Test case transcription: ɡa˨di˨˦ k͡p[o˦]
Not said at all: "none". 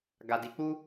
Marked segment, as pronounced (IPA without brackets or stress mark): u˦